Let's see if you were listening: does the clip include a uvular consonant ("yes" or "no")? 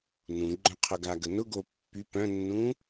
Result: yes